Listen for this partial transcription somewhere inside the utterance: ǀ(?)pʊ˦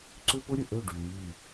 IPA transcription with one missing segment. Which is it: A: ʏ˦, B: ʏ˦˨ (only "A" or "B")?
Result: A